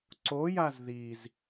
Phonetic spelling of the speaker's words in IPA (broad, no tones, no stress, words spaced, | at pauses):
ǀojaz ðiz